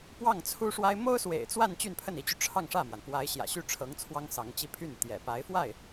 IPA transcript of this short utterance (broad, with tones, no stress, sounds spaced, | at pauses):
p w ɑ˥˩ ŋ t͡sʰ u˥ ʂ w a˥ ɪ̯ m o˥ ʊ̯ s w ḛ˨˩ ɪ̯ t͡s w a˥˧ n t͡ɕ y˥˧ n pʰ ə˥˩ n i˧˥ t͡ɕ y˧ ʈ͡ʂʰ ɑ˥˧ ŋ ʂ ä˥˩ m w a˩ n p w a˧˥ ɪ̯ ɕ j ä̰˨˩ ɕ y˥˩ ʈ͡ʂʰ ɤ˧˥ ŋ t͡sʰ w ɑ˥ ŋ s ɑ˧˥ ŋ t͡ɕ i˥ pʰ y˥˩ n t̪ j ɛ̰˨˩ p a˧˥ ɪ̯ f w a˥˩ ɪ̯